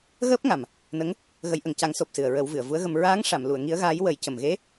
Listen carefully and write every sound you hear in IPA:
ɣ əː˦˥ p̚ ŋ a˨˩ m | n ə˧˥ ŋ | ɣ ə˨˩˦ j ʔ ə˨˩ ŋ c a˨˩˦ ŋ s o˨˩ p̚ s ɨ˨˩ ə̯ ɹ ə˨˩˦ w v ɨ˨˩˨ ə̯ v u˧˥ ə̯ ɣ ə˧ m ɹ aː˧˥ ŋ ʂ a˨˩˨ m l u˨˩˨ ə̯ ŋ i˧˥ ə̯ ɣ aː˧˥ j w ə˨˩˦ j c ə˨˩ m ɣ e˧˥

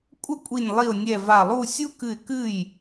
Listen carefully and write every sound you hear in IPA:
kʷʼ ɘ˥˩ kʷʼ i˧˩ nʲ lˠ i˧˩ ʊ̯ nʲ ɛ˧˩ v a˧˩ lˠ u˥˧ sʲ u˦˥ k ɨ˧˩ ɪ̯ k ɨ˥˩ j

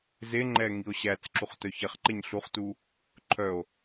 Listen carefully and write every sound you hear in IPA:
z e ŋ͡ǃ ɛ ŋ i o̯ ɕ æ t͡s ǁ u χ t œ ç ɛ χ ǃ e ɲ ɬ u χ t u | ǃʰ œ o̯

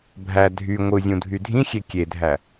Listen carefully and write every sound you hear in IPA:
bʱ æ dʱ y ŋʷ ɯ zʲ ũ dʱ y dʱ ĩ xʲ e kʲ e dʱ æ

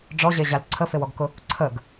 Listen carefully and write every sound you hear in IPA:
ɖ͡ʐ ɔ ʑ e ʑ a l ǀʰ ə f e w ɔ ɡ k ʊ | ǀʰ ə ɡ

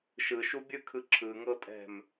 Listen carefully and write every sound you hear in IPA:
ʃ ɯ ʃ u bʲ ɯ kʰ ɯ ǁʰ ɯ ŋ ɤ tʼ ɛ̤ m

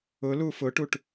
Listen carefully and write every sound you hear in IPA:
ʊ l u f ʊ ʈ u ʈ

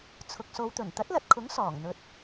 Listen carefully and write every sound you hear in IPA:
t͡sʰ ʊ˨ k̚ s o˨˧ w t̪ ɵ˨˩ n t̪ ɐ˨˥ t̚ l ɐ˨ t̚ kʰ ʊ˨˥ ŋ s ɔː˨˩ ŋ n̪ ɵ˧ t̚

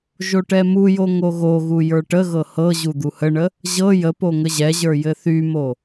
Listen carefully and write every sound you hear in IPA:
ʒ o ʈ ɛ m u j o ŋ o ɣ o ɣ u j ə˞ ʈ ə ɣ ɤ h ɤ ʑ u d̪ u h ə ɳ ə | ʑ ɤ j ə p o ŋ ə ʑ ɛ ʑ ə˞ j ɘ θ y m o

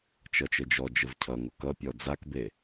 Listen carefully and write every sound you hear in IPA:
t͡ʃ ʌ t͡ʃ ə d͡ʒ ɔ d͡ʒ ə v cʰ ʌ ŋ o k ʌ pʲ ɔ d͡z a k b e

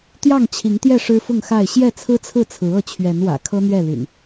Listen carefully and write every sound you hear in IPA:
t̪ j ɑ˥˨ ŋ t͡ɕʰ i˨˦ ŋ t̪ j ɛ˥˨ ʂ ɻ̩˦ f ʊ˥˨ ŋ x a˥˨ ɪ̯ ɕ j ɛ˥˨ t͡sʰ ɹ̩˦ t͡sʰ ɹ̩˥˨ t͡sʰ ɹ̩˨˦ ɤ˥˨ t͡ɕʰ ɥ ɛ˨˦ n w ä̰˨˩ kʰ ɤ˦ n̪ ɥ ɛ˥˨ l y̰˨˩ n

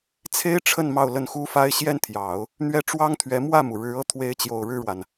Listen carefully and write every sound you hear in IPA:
t͡sʰ e˥ ɪ̯ ʈ͡ʂʰ ə˥˧ n m ɑ˥˧ ʊ̯ l ə˥˩ n x u˥ f a˥ ɪ̯ ɕ j ɛ˥ n t̪ʰ j ɑ˨˩˦ ʊ̯ | n̪ ɥ ɛ˥˩ ʈ͡ʂ w ɑ˥ ŋ t̪ʰ ɥ ɛ˧˥ m w ä˥˩ m u˩ ɻ ɻ̩˧˥ ɤ˥ t̪ʰ w e˧˥ ɪ̯ t͡ɕ j o˨˩ ʊ̯ ɻ ɻ̩˥˩ ɻ w a˩ n

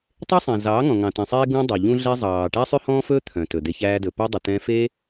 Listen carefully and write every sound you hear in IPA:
tˤ e˦ sˤ ɛ̃˨ z ɑː˨˦ ŋ ɔ̃˨ ŋ ɑ̃˨ t ẽ˨ sˤ eː˦ ɡ ũ˧ dˤ œ˨ ʎ ũ˦ ɮ ɛ˦ zˤ ɑː˨ ʈ æ˦ sˤ ʉ˦ h ɔ̃ː˦ f ɵː˦ t̪ʰ œ̃˨ t ɵ˨ d e˧ ç æː˧ d ɵ˨ p ɵː˦ dˤ u˨ t ɛ̃ː˧ f eː˦

